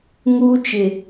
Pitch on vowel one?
high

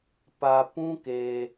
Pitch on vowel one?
low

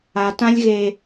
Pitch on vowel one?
low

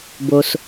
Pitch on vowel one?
low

